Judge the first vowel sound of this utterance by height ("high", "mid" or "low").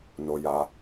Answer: mid